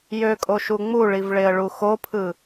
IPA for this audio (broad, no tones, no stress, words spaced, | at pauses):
jøkʼoʃu ŋ͡muɭivɭeə̯ɭu xopʰɯ